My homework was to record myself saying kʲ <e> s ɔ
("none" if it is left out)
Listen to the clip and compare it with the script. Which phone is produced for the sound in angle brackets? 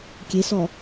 e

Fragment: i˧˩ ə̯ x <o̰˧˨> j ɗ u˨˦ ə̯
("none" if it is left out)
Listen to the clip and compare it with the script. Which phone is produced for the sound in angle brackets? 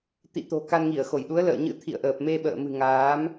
o˧˩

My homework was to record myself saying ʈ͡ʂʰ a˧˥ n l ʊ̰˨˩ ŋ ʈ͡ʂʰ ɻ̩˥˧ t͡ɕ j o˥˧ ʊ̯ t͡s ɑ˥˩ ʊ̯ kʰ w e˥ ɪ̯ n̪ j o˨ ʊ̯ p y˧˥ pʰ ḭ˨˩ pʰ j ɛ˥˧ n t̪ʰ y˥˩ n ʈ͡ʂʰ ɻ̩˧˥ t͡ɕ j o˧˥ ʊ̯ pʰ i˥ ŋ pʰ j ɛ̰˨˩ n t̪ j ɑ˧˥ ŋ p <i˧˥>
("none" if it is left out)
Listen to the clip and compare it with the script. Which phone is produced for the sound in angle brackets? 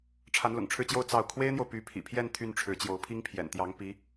i˧˥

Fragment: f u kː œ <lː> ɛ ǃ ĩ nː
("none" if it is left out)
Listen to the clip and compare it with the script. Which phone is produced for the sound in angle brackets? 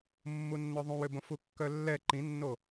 lː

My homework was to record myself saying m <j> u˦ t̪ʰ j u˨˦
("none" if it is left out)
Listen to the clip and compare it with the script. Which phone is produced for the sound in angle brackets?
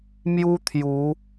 j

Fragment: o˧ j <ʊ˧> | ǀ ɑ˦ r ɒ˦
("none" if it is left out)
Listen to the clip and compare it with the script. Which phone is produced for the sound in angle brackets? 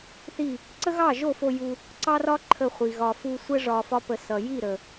u˧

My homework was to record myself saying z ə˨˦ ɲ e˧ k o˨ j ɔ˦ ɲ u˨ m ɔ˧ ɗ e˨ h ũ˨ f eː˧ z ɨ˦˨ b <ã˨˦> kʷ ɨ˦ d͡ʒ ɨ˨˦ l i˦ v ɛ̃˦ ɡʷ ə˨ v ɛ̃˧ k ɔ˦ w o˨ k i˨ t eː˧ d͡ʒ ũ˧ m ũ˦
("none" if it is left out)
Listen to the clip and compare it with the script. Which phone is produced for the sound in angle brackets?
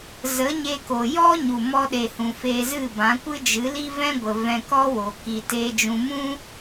ã˨˦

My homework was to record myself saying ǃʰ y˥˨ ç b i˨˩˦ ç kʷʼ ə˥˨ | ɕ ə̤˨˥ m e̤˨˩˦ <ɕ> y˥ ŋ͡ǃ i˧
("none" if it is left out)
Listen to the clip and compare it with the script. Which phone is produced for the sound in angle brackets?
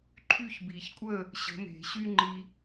ɕ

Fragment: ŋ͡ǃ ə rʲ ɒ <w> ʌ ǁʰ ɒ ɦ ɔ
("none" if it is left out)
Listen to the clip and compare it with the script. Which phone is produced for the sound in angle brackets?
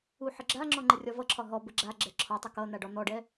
v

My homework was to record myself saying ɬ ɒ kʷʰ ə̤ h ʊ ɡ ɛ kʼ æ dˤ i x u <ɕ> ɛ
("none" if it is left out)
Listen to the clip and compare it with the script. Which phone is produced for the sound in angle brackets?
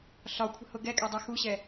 ɕ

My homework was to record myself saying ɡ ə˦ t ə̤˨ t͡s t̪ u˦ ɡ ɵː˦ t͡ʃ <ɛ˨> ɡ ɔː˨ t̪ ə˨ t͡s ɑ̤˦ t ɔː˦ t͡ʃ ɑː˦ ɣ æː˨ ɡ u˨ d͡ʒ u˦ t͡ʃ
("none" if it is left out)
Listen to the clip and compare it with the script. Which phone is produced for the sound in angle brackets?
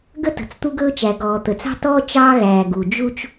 æ˨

